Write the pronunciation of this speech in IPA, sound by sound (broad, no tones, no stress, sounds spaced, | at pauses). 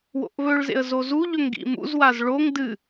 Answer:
w o̰ ʔ β ɵ ɭ z ḛ ə̯ z o z u ʎ ɵ ŋ ɡ ḭ m ṵ z w a z ɭ o ŋ d ɨ